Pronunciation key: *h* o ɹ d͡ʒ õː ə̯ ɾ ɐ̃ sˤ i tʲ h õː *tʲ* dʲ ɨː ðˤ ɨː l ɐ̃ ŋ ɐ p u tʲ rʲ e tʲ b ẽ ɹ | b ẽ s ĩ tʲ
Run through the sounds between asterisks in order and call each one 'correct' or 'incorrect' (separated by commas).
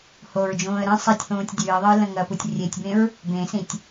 correct, correct